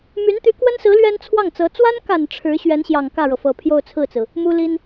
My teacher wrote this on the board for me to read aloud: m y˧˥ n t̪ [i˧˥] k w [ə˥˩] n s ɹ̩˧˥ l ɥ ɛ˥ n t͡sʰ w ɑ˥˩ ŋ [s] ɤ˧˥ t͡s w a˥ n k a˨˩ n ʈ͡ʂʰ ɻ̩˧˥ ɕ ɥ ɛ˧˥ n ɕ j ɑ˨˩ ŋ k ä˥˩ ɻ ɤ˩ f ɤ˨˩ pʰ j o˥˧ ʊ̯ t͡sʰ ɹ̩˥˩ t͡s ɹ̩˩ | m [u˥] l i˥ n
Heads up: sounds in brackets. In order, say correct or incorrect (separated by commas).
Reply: incorrect, incorrect, incorrect, correct